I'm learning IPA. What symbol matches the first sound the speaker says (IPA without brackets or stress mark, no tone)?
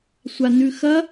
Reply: sʷ